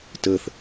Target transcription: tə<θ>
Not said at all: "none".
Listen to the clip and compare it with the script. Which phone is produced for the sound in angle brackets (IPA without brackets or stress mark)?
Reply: θ